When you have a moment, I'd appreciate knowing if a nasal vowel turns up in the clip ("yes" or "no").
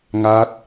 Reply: no